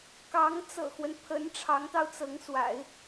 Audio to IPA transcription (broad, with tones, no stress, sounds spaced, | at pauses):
k ɑ˧˥ ŋ t͡s ɤ̰˨˩ x w ə˦ n pʰ ə˧˥ n ʈ͡ʂʰ ɑ˧˥ ŋ t̪ ɑ˧ ʊ̯ t͡s ɤ˧˥ ŋ s w a̰˨˩˦ ɪ̯